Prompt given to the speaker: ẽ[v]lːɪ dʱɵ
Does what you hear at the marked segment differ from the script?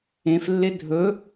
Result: yes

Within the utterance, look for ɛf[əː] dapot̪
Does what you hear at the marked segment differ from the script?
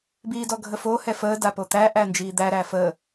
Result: no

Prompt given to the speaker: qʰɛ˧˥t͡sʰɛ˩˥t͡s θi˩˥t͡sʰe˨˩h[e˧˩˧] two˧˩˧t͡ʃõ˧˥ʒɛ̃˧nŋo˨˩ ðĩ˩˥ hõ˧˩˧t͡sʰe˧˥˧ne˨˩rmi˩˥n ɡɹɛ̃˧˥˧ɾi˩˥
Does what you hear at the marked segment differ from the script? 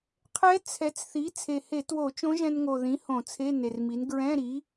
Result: no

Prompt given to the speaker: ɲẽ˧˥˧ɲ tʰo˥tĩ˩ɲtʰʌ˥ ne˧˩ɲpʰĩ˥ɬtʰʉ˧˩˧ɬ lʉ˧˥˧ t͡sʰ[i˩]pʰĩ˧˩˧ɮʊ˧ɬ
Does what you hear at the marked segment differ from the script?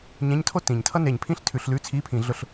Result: yes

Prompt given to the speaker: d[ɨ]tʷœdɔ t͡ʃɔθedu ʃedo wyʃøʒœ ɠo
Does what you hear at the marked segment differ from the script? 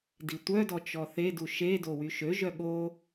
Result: yes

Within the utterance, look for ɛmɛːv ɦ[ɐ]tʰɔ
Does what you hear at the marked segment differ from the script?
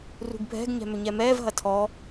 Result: no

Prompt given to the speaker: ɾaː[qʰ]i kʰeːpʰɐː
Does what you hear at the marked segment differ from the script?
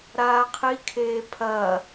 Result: no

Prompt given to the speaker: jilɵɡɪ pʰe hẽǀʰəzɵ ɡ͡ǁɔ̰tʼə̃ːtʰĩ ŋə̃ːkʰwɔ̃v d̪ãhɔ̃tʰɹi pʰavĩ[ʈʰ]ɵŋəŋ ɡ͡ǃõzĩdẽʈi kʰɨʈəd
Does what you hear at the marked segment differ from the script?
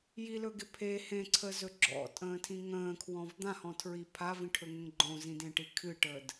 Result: no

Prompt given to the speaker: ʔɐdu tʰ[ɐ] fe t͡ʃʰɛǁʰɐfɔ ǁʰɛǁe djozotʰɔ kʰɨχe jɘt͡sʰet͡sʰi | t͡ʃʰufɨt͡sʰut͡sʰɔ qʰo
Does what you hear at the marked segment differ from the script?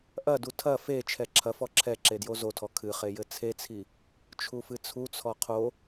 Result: no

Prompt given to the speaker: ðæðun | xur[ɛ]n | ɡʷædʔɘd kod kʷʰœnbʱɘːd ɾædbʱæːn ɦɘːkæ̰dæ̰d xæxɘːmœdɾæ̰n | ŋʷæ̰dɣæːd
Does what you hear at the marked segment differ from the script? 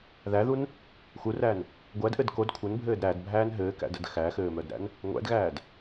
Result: yes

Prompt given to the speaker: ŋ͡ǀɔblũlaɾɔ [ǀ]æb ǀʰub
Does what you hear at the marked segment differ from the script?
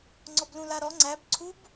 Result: yes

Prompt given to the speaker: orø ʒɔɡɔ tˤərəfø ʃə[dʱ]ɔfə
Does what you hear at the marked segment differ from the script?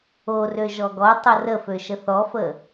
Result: yes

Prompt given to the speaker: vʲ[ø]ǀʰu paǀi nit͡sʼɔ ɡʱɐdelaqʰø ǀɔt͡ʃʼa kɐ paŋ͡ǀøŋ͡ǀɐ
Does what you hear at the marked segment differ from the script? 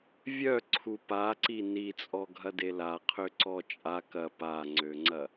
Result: yes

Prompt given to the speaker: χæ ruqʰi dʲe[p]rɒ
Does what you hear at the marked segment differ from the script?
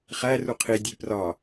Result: no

